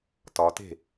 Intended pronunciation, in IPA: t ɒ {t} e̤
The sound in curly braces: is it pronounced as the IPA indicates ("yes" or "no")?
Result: yes